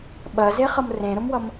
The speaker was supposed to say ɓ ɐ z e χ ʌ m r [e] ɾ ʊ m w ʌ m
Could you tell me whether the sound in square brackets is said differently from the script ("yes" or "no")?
yes